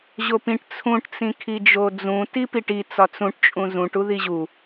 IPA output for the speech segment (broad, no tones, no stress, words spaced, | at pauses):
ʑopĩʈ t͡sʰũʈ t͡sĩkʰid͡ʒod͡zũ tipiʈi t͡sɒt͡sũʈ t͡ʃʼũzũʈ uðiʑu